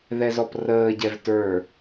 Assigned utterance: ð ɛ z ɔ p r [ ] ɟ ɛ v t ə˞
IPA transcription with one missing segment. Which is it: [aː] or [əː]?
əː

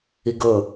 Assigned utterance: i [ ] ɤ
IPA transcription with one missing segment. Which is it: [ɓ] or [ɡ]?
ɡ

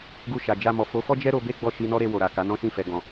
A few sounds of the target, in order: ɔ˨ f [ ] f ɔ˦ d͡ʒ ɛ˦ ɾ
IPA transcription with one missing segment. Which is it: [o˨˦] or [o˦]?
o˨˦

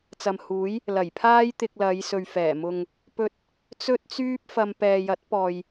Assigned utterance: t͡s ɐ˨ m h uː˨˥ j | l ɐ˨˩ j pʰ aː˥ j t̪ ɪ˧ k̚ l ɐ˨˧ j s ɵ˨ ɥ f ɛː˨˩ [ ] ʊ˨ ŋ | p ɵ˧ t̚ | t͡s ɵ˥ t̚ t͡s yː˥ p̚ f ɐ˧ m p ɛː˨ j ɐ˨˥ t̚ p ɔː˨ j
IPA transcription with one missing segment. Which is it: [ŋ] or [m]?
m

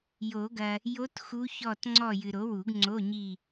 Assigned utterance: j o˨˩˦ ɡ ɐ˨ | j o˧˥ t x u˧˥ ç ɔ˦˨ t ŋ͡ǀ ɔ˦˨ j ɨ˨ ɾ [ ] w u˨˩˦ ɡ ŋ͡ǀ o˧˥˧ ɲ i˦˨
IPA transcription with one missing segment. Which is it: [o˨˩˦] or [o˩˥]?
o˩˥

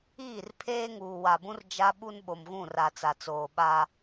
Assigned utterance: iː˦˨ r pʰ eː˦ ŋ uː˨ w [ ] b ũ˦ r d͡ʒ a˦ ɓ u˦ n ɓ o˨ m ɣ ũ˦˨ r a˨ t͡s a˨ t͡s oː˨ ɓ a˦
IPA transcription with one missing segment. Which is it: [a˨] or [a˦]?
a˨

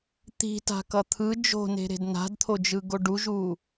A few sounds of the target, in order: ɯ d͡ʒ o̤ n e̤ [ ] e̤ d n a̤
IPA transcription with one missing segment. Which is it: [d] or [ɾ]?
ɾ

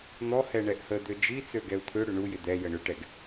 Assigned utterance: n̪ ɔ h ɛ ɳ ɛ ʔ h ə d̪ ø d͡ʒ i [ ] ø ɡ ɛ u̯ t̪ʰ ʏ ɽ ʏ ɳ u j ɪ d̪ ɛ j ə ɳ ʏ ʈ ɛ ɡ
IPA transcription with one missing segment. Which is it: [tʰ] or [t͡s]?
t͡s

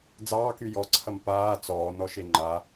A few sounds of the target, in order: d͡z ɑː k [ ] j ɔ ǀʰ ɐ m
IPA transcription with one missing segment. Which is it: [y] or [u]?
y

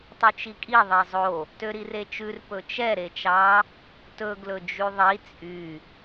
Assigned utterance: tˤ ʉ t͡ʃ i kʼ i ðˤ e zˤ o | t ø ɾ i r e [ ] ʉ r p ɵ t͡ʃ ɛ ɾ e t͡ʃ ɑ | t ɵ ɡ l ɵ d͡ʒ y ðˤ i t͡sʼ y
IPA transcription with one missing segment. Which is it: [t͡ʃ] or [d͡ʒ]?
t͡ʃ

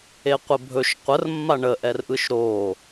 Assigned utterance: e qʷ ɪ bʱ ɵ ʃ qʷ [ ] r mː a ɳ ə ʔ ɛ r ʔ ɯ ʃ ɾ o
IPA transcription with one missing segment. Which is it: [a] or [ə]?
ə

